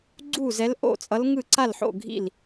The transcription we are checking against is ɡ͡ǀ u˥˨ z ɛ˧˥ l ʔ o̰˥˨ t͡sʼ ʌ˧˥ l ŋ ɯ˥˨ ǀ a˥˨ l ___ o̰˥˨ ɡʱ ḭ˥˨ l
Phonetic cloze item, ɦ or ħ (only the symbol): ħ